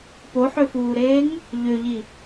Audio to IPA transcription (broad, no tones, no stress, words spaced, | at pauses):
poħøfuːɾeːŋ | ʎøʎi